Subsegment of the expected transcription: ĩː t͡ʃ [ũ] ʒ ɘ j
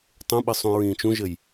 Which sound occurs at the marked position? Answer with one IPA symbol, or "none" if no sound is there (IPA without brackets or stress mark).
ũ